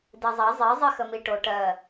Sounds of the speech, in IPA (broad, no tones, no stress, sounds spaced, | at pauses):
d e zˤ a zˤ e zˤ i x ə m i ʈ o ʈ ɜ